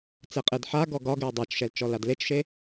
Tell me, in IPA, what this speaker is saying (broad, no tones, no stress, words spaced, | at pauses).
t͡seqʼedħaɡɔ ɡɒ ɡɛwdˤat͡ʃʃɛl t͡ʃɔladlet͡ʃʃe